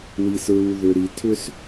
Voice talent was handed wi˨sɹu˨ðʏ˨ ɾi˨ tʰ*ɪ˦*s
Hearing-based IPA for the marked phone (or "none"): ʏ˦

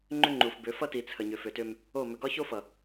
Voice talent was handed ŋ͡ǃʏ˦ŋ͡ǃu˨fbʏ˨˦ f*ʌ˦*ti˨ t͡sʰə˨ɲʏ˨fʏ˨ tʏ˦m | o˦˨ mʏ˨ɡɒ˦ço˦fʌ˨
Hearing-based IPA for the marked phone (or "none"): ʌ˦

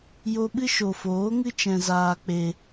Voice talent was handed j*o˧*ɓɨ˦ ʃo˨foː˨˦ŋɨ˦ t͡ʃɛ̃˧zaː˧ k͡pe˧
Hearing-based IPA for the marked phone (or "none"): o˧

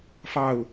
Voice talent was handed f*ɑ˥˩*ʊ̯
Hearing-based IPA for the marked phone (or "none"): ɑ˥˩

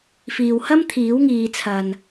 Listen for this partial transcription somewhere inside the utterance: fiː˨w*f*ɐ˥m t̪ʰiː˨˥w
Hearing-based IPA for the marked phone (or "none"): h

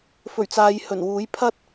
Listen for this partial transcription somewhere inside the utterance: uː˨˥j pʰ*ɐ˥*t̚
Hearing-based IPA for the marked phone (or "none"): ɐ˥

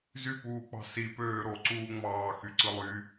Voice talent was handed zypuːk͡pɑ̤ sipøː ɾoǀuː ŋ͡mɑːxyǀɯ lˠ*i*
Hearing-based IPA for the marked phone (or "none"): y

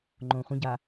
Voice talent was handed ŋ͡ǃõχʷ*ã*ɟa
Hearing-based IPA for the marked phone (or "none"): ə̃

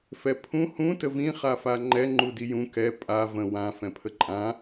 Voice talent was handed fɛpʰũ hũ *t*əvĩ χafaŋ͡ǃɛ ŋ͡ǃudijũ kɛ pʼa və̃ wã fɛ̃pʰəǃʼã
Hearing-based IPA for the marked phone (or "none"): t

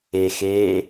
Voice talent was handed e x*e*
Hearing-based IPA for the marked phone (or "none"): e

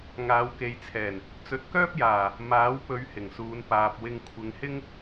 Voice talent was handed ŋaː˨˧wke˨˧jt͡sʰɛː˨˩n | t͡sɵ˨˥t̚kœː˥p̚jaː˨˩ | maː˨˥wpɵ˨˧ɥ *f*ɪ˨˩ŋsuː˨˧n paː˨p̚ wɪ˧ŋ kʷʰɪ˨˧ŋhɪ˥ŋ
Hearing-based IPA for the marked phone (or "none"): h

